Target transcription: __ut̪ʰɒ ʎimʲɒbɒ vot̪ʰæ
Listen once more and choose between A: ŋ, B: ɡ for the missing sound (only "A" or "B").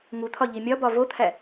A